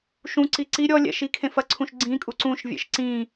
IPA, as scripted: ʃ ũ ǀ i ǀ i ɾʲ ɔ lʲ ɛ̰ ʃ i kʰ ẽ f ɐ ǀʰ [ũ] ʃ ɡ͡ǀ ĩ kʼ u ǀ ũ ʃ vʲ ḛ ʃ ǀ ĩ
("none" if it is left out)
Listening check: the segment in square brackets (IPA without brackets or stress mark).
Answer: ũ